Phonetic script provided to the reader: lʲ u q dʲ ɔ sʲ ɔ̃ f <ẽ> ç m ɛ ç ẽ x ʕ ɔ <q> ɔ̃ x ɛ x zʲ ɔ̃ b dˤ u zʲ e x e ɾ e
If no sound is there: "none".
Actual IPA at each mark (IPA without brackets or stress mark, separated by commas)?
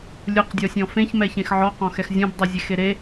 ẽ, q